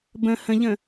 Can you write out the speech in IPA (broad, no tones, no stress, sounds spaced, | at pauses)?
b ə̃ h ə̃ ʎ ə̃